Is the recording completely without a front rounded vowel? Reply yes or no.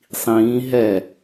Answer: yes